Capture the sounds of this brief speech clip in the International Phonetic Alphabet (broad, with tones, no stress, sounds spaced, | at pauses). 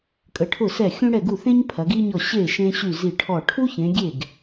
kʼ ə˨˦ ʈʰ ʊ˥˩ s ɛ˥˩ xʲ ũ˥ ɽ ɛ˥˩ ɡ u˥˩ θ ẽ˥ ɲ pʰ ɐ˨˦ ɡ i˥ ɲ ɔ˥˩ ɕ e˥˩ ʃ ẽ˥ ɕ y˥˩ z i˥˩ ʈʰ ɔ˥˩ ʈʰ u˥ ç ẽ˨˦ ɡʲ e˥˩ ɡ